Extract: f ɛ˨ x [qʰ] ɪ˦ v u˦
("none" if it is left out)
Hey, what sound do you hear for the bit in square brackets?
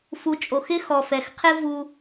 qʰ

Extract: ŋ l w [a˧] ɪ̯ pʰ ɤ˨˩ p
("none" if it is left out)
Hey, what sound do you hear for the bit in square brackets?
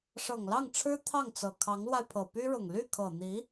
a˧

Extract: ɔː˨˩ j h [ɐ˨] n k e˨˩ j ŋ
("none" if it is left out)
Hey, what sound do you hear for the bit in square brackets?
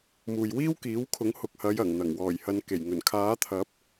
ɐ˨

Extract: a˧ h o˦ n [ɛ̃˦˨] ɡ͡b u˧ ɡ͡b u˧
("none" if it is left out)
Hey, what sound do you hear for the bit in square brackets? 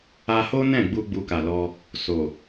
ɛ̃˦˨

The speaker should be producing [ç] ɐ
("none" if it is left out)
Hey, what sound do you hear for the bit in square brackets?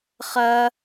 χ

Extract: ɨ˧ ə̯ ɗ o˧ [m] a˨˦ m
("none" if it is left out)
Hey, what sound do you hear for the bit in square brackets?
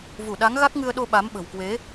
ɓ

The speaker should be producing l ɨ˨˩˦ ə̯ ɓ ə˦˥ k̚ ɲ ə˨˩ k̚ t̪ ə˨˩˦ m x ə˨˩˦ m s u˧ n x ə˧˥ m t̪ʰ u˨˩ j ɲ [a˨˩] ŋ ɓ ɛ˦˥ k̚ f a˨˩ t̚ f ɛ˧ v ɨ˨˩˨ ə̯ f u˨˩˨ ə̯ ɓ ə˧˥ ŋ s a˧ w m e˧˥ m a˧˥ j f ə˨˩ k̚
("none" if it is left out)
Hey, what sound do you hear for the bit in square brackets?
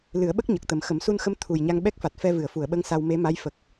a˧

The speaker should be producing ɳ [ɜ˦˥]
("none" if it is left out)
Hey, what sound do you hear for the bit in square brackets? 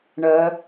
ɜ˦˥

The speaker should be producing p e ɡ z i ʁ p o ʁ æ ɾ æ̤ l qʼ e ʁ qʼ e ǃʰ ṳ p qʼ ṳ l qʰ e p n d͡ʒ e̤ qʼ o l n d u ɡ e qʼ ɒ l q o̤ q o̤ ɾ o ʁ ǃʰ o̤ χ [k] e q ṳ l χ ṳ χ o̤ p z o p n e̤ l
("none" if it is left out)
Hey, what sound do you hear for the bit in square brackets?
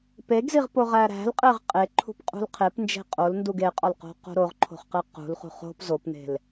q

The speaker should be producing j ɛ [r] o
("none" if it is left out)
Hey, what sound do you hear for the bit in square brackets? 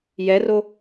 r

